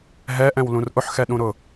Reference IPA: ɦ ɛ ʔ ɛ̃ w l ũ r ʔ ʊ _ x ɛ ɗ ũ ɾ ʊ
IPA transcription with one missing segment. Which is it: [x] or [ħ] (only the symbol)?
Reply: ħ